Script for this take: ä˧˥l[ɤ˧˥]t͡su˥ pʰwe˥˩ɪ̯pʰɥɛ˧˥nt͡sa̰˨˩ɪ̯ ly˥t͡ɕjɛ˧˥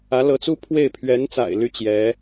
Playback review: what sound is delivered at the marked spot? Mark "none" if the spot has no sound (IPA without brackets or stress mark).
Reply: ɤ˧˥